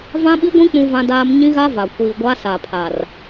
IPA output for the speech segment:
vã˦ɓi˦ɡʷĩ˦ k͡pũ˦vã˦daː˦m ɲĩ˦ɣa˦va˨ kʷiː˨ ɡʷa˦ sa˨pʰa˨r

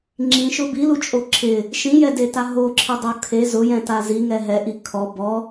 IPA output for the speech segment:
ŋ͡ǁĩʃʊ bilut͡ʃʼo ǁʰɪ | ʃĩjɛdeta ɦoǁʰɪdˤo kʰe zʊjɛ̃ta ziŋɛ ɦɛʔi kʰɔ bɔ

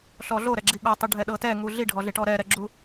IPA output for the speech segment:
ɬɔɮoɾɛɡ͡ǁi ɠɔtˤu ɖʱɛɗɤtɛŋu ɮiɖʱɔɮeʈɔ ɾɛɾɛɡ͡ǁu

